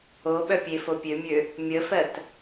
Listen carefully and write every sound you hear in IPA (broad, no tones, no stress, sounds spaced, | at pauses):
o ɓ œ pʲ e f o pʲ ø mʲ ø | mʲ ə f ɜ t